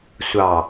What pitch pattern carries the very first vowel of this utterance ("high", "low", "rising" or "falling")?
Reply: low